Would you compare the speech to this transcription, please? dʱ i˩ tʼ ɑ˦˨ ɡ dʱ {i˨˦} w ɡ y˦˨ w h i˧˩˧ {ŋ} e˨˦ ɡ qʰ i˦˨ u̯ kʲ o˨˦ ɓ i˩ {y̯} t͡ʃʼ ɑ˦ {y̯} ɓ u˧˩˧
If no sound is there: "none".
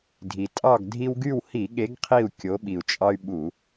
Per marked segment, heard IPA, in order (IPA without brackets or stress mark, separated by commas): i˦, ɠ, u̯, y̯